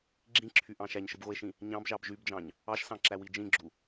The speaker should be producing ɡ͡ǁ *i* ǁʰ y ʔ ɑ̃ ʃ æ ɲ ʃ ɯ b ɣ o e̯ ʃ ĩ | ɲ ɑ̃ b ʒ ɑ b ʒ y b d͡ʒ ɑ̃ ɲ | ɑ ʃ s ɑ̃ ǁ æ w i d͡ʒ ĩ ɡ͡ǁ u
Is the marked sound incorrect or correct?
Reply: incorrect